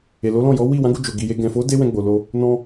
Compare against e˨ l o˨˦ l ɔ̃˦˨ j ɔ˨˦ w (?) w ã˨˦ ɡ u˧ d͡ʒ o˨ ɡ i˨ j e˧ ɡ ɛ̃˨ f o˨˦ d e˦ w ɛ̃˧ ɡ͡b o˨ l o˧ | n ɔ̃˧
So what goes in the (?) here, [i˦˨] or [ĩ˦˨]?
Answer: i˦˨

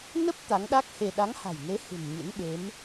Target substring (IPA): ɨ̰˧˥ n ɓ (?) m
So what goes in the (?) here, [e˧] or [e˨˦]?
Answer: e˨˦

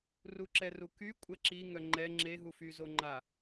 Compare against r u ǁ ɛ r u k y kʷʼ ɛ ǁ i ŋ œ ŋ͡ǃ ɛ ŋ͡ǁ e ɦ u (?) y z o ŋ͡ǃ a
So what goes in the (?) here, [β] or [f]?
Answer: f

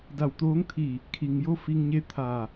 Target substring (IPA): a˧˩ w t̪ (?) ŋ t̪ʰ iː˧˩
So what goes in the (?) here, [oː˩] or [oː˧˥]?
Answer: oː˧˥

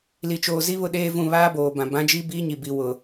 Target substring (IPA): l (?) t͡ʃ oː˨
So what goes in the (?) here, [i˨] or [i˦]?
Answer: i˨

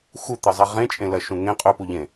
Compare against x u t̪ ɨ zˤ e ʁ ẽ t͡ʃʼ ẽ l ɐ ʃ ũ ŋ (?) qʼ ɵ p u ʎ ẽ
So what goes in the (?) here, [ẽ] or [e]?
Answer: ẽ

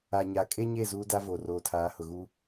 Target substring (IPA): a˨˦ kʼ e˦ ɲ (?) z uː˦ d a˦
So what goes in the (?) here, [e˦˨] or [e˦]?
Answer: e˦˨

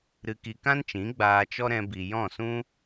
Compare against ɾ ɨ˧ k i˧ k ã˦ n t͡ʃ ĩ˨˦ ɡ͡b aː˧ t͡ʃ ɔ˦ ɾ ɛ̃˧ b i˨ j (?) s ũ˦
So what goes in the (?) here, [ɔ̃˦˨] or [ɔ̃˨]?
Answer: ɔ̃˦˨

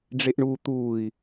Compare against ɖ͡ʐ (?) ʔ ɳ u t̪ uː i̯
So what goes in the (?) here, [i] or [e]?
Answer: e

